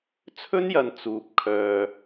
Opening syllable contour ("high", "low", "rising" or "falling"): high